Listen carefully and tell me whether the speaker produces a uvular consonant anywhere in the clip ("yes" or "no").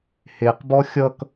yes